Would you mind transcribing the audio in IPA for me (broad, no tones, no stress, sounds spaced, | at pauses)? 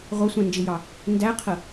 ʁʷ ʌ sʷ ɛ̃ n d͡ʒ ɪ j ɑ | n d æ qʰ ə